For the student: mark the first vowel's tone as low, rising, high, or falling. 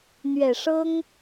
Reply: low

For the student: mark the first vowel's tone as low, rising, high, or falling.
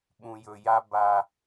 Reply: low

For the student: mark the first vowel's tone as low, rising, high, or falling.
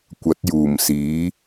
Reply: rising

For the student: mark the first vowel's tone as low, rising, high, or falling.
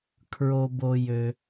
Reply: low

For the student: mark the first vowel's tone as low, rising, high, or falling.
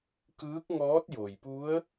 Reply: rising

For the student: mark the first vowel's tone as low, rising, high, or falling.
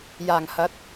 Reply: low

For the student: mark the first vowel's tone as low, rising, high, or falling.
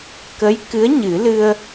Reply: rising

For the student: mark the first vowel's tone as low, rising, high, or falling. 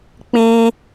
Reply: high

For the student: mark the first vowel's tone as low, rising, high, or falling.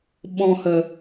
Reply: low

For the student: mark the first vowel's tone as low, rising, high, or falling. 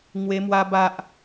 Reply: high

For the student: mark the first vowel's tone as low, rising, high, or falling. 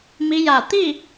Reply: rising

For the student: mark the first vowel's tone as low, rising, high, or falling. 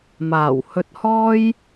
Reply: low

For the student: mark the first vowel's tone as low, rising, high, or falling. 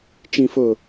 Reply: low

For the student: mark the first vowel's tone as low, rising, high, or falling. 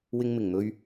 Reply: high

